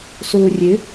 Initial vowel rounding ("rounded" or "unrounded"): rounded